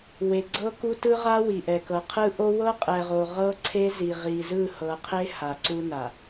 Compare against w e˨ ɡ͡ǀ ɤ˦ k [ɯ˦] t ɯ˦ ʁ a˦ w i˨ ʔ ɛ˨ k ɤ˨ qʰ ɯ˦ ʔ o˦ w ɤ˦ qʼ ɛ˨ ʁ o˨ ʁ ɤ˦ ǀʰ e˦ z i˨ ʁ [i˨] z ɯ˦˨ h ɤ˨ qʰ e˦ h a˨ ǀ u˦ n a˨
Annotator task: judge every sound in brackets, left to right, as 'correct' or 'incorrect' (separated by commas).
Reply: incorrect, correct